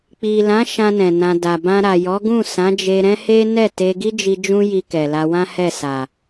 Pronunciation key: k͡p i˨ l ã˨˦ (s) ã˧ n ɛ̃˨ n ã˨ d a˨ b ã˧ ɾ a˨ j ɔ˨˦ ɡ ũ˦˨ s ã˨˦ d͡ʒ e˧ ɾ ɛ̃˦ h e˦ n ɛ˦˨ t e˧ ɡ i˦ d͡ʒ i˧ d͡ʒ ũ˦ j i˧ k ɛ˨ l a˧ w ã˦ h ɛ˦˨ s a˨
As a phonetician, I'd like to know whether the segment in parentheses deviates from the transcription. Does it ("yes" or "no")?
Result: yes